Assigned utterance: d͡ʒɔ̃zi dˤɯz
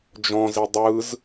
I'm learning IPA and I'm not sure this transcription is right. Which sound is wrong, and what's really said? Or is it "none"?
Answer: none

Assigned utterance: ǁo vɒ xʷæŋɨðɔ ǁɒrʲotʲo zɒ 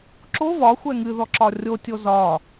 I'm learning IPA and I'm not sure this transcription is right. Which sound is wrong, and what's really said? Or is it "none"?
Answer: æ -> ɛ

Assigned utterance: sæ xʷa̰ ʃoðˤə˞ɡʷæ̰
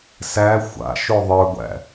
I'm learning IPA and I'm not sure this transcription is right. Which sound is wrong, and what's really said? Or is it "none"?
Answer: none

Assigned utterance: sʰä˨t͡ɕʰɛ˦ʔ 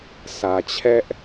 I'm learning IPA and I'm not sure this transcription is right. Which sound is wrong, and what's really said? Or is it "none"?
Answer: none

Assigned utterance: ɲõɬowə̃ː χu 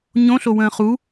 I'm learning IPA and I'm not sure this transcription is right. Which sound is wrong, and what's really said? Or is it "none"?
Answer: none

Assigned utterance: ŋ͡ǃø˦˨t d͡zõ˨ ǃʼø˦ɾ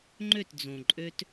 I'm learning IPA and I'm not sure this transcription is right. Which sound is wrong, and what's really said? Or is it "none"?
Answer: ɾ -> t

